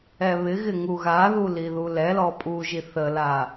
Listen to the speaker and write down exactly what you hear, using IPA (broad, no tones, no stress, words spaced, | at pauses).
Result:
ɛβɪɣɪ ŋuɣaðu liðulɛlɔ pʼu ʒiθəla